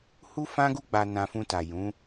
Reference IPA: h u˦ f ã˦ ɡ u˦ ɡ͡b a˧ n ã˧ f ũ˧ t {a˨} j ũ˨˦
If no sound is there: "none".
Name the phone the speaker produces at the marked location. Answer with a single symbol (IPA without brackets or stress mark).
a˨